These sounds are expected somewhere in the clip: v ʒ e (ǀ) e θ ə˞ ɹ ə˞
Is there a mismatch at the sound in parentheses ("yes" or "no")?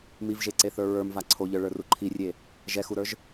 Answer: no